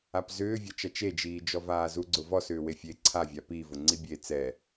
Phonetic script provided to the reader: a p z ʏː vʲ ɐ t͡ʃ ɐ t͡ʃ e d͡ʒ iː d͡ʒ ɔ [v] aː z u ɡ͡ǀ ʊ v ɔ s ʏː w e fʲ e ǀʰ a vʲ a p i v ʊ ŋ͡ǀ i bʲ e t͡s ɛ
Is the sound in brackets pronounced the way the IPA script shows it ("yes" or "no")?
yes